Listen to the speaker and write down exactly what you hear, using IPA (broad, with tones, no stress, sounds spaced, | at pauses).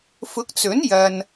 f ʊ˨˥ k̚ t͡s ɵ˨˥ n j ɐ˧ n